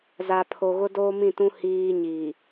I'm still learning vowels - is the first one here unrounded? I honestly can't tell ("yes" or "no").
yes